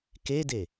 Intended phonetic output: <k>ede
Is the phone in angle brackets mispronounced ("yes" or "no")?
no